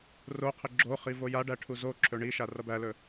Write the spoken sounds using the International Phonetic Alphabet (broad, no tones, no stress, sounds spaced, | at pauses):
r o qʰ ɪ ɡ͡ǁ o χ i v o j a ɖ æ ʈʰ u z o ǁʰ ɵ ɳ i ʃ a r ʌ b æ l ɵ